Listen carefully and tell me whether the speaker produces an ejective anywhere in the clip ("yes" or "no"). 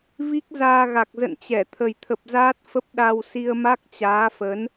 no